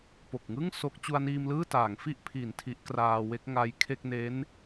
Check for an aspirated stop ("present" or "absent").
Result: present